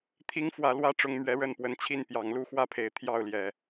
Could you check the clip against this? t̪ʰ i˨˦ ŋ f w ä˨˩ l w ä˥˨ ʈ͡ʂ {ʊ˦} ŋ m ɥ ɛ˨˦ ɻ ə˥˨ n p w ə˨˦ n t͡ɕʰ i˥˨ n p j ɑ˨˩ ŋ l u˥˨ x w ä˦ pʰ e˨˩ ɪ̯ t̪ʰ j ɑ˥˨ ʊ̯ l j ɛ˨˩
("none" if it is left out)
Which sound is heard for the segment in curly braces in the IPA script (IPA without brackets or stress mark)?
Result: ʊ˨˦